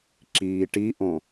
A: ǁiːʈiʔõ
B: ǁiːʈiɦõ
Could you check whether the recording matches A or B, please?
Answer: A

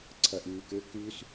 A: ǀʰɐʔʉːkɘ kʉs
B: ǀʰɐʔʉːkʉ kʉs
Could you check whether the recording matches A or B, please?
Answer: A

